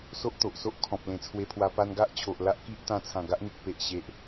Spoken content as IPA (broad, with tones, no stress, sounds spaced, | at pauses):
s o˦ ʔ t̪ o˨ ʔ s o˦ ʔ kʰ ɔ̃˨ p̚ l ẽ˨˩ t͡sʰ w e˧ pʰ w a˧ p a˧ n ɡ a˦ ʔ t͡ɕʰ o˨ ʔ l a˦ ʔ k i˦ ʔ t̪ ã˧ t͡sʰ ã˨˩ ɡ a˦ ʔ n̪ i˨ k̚ p e˨ ʔ ɕ e˨ ʔ